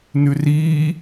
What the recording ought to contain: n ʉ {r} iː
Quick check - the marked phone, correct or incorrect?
correct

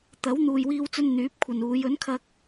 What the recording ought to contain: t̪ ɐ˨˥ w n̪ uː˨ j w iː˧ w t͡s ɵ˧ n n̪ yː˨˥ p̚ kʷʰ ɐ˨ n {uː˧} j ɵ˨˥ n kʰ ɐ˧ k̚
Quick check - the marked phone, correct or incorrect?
incorrect: uː˨˧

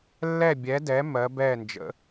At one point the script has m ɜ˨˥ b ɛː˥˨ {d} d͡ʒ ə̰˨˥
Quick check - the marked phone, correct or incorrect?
incorrect: n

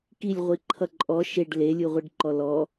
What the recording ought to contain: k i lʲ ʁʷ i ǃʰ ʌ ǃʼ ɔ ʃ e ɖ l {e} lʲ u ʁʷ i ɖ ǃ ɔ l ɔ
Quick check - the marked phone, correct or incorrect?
correct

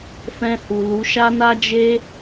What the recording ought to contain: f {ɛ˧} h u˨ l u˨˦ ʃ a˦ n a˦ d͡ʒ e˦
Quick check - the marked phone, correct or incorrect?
incorrect: ɛ̃˧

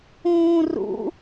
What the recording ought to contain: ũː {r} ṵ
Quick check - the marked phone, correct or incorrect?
correct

